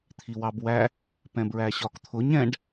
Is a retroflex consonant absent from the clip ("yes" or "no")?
no